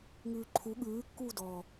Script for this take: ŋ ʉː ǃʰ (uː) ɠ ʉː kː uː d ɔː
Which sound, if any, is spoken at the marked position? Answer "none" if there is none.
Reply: u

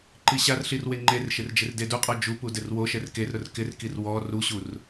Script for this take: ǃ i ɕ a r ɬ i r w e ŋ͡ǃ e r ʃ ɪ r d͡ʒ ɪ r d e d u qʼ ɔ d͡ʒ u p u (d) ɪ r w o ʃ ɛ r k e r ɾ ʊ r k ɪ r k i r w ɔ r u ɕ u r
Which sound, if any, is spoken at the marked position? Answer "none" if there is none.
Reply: d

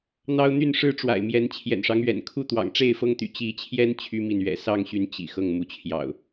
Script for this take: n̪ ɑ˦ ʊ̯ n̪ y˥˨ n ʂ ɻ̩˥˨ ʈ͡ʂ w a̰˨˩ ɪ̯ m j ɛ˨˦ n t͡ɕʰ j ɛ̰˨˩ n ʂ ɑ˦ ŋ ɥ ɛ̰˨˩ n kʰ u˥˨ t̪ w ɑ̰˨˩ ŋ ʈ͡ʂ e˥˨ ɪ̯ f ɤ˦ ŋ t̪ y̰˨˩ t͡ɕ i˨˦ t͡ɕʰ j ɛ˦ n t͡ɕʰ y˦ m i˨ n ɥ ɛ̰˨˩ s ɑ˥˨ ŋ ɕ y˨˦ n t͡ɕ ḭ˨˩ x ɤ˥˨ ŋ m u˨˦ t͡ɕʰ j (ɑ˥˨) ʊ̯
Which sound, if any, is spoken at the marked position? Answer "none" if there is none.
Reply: ɑ̰˨˩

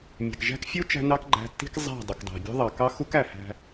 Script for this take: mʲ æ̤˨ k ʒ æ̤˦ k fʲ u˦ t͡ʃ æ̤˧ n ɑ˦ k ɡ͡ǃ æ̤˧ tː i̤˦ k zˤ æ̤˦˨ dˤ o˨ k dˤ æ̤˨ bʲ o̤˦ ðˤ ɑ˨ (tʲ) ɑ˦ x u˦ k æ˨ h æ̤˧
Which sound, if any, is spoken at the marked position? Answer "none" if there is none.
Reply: k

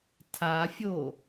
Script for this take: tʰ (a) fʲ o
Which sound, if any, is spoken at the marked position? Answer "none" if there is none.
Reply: a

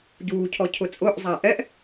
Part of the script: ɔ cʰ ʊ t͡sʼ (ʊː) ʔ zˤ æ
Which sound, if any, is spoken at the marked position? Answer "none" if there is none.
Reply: ʊː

